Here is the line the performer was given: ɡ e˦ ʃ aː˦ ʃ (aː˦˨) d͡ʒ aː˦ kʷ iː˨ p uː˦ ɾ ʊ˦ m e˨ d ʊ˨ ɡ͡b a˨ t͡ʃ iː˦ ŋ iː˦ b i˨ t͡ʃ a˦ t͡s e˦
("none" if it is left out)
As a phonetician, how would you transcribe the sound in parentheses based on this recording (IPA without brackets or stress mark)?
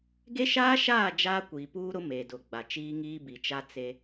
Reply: aː˦˨